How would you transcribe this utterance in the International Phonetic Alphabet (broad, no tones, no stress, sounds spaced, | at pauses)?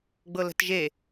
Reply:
ɡ͡b ɤ l ə̤ t ʒ e